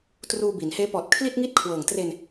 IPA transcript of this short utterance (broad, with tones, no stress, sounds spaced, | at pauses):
t r uː˧ b i˩˦ n h eː˦˥ p ɔː˨˩ t̚ kʰ l i˥˩ t̚ ŋ i˥˩ t̚ kʰ w ɤː˨˩ ŋ t r e˧ n